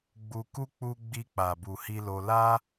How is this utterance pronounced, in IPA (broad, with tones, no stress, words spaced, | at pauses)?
ɡ͡bu˧ku˦ k͡pu˦ ɡ͡bi˧k͡pa˨bu˨ hi˧lo˧ la˦